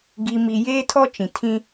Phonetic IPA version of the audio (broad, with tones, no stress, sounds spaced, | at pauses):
ɡ i˨ m i˨ j eː˦ tʰ ɔ˦ t͡ʃ ĩ˨ tʰ ĩ˦